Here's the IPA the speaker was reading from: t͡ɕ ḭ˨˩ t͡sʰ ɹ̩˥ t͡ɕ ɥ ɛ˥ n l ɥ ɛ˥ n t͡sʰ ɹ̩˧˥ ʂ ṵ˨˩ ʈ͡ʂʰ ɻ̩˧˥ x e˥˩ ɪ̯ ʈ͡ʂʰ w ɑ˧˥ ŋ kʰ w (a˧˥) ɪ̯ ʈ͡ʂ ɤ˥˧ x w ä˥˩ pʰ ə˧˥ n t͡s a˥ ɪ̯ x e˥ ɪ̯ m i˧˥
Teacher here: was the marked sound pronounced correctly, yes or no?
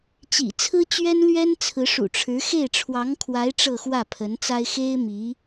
yes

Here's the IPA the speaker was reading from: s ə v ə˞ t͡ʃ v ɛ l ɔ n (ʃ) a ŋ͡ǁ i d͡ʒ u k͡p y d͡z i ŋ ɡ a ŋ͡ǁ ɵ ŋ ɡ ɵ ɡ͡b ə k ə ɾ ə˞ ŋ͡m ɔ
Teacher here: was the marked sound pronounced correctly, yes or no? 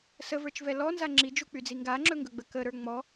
no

